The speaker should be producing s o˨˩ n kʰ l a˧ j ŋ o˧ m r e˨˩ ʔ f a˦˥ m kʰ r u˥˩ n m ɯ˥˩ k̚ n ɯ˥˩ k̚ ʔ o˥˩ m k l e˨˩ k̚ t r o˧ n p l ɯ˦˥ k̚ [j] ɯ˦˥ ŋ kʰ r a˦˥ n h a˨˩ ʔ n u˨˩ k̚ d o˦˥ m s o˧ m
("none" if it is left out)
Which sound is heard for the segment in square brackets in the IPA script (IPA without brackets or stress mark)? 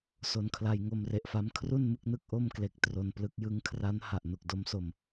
j